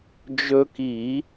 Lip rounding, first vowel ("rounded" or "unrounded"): rounded